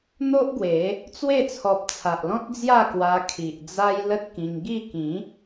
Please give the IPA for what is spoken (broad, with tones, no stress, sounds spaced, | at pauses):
n̪ o˦ ʔ ɡ w e˨˦ | t͡s w e˥˧ t͡sʰ ɔ˨ p̚ t͡sʰ a˨ ʔ l ɔ̃˦ t̚ d͡z j a˥˧ k w a˧ kʰ i˨ ʔ d͡z a˦ j l ə˦ t̚ k ĩ˧ ŋ ɡ i˥˧ k ĩ˨˦